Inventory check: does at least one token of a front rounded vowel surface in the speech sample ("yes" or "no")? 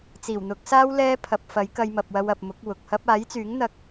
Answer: yes